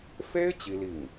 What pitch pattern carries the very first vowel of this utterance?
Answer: high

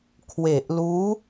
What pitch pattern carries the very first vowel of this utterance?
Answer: low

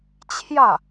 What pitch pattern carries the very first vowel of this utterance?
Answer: falling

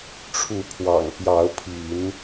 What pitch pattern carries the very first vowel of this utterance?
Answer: rising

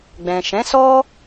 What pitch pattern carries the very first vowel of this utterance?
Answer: low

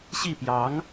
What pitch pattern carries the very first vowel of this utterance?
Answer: falling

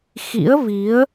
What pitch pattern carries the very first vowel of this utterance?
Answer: rising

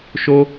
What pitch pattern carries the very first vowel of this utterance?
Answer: high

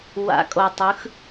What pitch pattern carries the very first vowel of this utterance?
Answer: rising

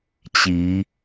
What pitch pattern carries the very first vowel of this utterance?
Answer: rising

